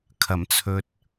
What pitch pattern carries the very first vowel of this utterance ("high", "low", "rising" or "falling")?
low